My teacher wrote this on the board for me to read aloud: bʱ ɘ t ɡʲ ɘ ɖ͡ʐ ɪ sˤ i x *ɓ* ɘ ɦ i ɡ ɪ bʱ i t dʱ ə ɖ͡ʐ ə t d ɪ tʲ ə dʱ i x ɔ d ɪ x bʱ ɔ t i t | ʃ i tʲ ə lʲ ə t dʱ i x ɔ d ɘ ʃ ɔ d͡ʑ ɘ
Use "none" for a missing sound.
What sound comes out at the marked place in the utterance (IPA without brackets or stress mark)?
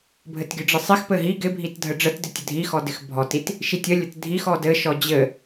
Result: p